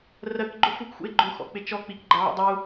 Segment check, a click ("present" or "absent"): present